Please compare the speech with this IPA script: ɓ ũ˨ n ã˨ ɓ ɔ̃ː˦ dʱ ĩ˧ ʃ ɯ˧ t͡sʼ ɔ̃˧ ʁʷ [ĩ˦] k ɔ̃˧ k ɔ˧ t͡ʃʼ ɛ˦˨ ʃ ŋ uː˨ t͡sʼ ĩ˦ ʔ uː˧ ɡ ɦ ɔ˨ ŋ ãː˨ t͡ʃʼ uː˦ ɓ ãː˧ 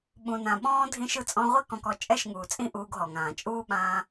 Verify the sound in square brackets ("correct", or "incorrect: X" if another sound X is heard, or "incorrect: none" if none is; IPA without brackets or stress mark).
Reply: incorrect: i˦